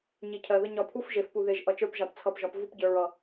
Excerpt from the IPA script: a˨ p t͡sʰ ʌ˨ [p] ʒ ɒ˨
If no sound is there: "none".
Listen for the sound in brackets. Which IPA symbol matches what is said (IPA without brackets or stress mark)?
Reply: p